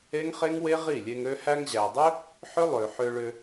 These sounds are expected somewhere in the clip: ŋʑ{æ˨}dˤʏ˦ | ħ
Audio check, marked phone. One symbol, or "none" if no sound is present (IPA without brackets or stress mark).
æ˨